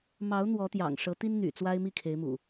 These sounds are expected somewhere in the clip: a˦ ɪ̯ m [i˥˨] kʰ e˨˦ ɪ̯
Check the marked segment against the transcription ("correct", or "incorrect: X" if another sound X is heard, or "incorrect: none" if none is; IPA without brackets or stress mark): correct